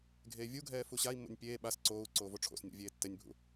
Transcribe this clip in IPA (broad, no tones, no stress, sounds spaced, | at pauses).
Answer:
ɡʱ eː vʲ u ɡʱ ɛː f u ɕ a i̯ mː o̰ nʲ pʲ eː ɓ a s ǀ oː u̯ ǀ oː v o ʈ͡ʂʰ o̰ s nʲ o̰ vʲ eː tː ɛ nʲ bʱ ṵ